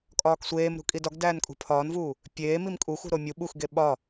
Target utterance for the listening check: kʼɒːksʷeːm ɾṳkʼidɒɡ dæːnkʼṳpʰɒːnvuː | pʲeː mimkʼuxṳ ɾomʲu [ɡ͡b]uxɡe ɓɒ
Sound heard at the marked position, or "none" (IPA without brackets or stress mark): ɓ